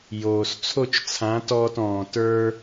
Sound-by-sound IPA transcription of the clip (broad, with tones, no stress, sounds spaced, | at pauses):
j oː˩ s t͡sʰ o˥˩ t͡ʃ t͡sʰ ã˩˥ t ɔː˧ t ɔ̃ː˩ t ə˞˧